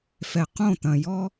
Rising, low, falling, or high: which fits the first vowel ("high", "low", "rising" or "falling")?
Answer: low